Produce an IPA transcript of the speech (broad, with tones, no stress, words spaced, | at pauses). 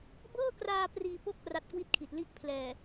bɤː˥˩kraː˧ priː˧po˥˩k̚ ra˦˥t̚kwi˥˩t̚kʰi˨˩t̚li˥˩ʔ pʰlɛː˨˩